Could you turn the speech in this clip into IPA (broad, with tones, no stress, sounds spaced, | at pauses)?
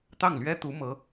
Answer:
t̪ ɑ˥˩ ŋ l ɥ ɛ˥ t̪ u˧˥ m ɤ˧˥